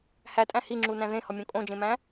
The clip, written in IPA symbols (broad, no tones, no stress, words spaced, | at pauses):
hætʼæ̃ hiŋ͡ǁunæ̃ ðẽhɒmʲõ kʼõd͡ʒẽmæ̃